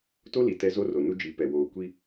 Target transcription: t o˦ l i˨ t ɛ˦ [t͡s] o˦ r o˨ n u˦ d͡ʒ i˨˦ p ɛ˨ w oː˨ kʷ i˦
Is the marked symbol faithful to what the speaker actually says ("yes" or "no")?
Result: no